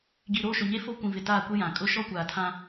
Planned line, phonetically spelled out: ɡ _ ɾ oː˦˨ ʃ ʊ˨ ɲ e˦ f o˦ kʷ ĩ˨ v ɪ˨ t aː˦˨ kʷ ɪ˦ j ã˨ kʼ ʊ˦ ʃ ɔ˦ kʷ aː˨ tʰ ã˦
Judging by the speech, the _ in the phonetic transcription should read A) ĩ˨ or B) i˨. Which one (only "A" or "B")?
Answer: B